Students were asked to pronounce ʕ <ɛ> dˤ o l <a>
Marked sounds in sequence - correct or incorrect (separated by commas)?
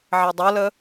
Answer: correct, incorrect